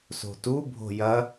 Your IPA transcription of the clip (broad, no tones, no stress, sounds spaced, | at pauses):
s o̤ t u bʱ o̤ j ɐ